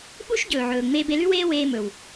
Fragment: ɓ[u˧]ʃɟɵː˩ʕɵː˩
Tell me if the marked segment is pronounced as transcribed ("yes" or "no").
no